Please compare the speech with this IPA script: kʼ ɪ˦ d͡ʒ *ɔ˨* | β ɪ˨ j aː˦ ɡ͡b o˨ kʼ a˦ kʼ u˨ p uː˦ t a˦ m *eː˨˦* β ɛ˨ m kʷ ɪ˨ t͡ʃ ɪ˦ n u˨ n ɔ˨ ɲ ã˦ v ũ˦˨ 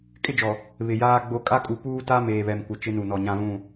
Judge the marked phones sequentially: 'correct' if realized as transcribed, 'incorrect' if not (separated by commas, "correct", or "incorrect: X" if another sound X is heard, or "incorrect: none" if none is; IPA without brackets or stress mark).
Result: correct, incorrect: eː˨